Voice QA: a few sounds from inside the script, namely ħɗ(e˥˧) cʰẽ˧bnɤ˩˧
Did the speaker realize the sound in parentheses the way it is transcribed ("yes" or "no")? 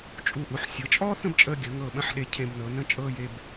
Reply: no